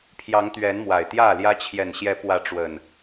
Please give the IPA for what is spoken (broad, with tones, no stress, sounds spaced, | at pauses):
pʰ j ɑ˨˦ ŋ t̪ ɥ ɛ˨˦ n m w a˨˩ ɪ̯ t̪ j ä˥˨ l j ä˦ t͡ɕʰ j ɛ˨˩ n ɕ j ɛ˨˦ p w ä˨˦ ʈ͡ʂ w ə˨˩ n